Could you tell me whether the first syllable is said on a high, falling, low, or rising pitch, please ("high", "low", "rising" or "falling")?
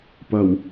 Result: low